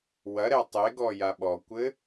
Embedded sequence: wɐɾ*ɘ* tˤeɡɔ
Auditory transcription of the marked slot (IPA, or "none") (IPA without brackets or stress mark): ɛ